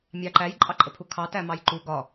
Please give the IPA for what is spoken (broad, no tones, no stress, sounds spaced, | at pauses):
mʲ ɑ ǃ æ j ǃʼ ɑ ǃʼ ə pʰ u kʰ ɑ t æ m ɑ j ǃ u ɡ ɒ